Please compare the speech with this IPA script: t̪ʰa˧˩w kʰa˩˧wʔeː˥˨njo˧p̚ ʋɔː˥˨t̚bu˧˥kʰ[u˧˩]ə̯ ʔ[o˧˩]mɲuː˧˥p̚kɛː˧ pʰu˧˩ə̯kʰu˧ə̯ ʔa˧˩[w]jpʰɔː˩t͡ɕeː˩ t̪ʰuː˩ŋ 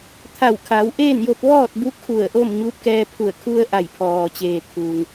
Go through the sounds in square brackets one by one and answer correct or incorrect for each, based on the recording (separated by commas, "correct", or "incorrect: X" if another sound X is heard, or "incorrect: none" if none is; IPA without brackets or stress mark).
correct, incorrect: o˥˨, incorrect: none